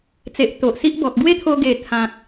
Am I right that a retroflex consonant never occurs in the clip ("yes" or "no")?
yes